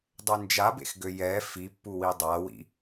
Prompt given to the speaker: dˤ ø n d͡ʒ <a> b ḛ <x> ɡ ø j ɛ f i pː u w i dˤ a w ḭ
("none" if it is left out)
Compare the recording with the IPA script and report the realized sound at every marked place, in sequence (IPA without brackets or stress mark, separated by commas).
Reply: a, x